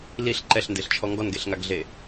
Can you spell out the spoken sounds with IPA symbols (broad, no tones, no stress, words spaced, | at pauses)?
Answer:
liɬ ǃɛɬndeɬt͡ʃʰɔ ŋɡɔnɡeɬŋaɡɮe